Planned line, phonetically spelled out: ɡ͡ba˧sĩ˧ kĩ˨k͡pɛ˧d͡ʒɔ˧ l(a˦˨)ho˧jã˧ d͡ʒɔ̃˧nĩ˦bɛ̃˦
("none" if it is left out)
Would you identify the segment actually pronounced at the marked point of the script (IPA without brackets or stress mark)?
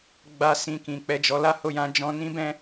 a˦